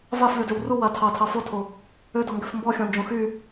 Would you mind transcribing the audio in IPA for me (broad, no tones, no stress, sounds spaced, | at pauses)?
v a f lʲ o d ø w r u w a tʰ ɑ tʰ ɑ f o tʰ o | ø d ɔ ŋ ɡ ø f m b ɔ xʲ ɔ̃ n d͡ʒ õ x y